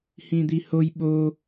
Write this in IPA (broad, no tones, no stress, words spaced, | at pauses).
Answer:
hĩd̪ihoj ɓo